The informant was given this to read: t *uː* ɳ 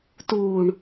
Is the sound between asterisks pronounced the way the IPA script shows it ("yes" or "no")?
yes